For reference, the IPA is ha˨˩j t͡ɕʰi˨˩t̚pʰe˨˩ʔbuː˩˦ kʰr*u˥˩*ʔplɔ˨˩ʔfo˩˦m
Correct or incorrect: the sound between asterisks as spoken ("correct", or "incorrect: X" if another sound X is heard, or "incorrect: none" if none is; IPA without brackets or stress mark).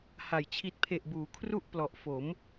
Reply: correct